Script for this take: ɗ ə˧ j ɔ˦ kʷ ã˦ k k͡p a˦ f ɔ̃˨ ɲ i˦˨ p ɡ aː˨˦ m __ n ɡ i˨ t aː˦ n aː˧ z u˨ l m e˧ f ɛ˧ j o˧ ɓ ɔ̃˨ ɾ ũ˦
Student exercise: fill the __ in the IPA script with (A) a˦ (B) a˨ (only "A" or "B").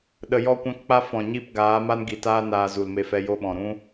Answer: A